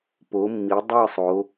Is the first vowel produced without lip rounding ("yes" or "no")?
no